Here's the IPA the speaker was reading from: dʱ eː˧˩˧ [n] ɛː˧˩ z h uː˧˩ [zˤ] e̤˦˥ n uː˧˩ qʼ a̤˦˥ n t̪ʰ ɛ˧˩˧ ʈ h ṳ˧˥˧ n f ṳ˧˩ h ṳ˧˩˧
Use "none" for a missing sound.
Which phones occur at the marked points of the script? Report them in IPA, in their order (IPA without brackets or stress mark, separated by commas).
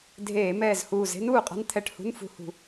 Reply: m, z